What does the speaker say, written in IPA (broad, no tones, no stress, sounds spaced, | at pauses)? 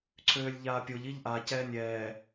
ǀʰ øː lʲ ʎ aː pʲ o ʎ i ʎ ʔ a c ɛː nʲ ɛː